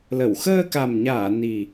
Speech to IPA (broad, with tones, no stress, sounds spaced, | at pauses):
l ə˧˩ w x əː˧ k a˨˩ m ɲ aː˧˩ n i˨˩